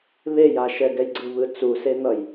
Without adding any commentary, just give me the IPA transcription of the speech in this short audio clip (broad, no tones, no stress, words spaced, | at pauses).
βejaʃɛ ɡɛjɡ͡ǀɯβɯ t͡susen̪ʌj